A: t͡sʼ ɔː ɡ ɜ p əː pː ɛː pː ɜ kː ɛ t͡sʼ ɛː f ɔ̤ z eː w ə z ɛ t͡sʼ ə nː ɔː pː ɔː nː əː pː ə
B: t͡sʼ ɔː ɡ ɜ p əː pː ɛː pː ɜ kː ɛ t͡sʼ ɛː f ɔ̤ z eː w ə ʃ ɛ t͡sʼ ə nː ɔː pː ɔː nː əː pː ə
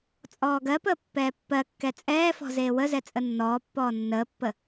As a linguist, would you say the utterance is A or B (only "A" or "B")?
A